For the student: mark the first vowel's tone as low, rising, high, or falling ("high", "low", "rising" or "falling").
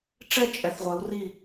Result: falling